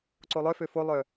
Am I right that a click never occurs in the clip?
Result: no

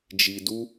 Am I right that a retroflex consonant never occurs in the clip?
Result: yes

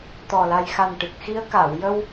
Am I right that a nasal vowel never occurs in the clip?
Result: yes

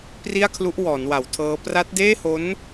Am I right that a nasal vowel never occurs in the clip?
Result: yes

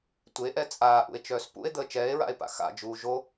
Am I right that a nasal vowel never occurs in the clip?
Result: yes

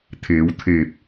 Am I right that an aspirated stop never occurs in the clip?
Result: no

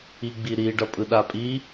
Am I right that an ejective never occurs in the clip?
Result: no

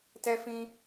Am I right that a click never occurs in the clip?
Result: yes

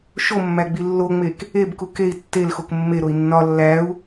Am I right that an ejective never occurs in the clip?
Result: yes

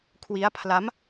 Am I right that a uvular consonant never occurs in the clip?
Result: yes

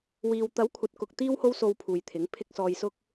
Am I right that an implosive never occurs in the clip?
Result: yes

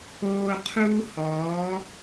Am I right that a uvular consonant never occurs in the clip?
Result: no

